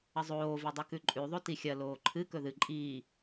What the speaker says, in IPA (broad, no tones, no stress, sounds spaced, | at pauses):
ɐ zˤ oː v ɨ dˤ ɨ k ʉ ǃʼ ʉ ðˤ o t i xʲ ɐ l oː ǃʰ ɨ k ɵ ð ɨ ǃʼ iː